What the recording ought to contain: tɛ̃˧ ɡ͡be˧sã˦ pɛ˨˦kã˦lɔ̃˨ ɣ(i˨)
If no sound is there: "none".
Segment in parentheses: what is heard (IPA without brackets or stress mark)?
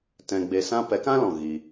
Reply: i˧